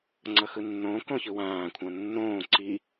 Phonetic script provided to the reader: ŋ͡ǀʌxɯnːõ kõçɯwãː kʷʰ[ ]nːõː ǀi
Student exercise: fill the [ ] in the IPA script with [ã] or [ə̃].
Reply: ã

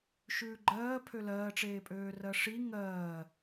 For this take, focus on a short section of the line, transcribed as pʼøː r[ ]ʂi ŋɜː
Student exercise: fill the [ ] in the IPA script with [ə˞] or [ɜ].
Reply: ɜ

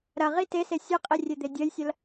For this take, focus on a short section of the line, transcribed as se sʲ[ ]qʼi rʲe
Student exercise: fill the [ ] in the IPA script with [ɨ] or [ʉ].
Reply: ɨ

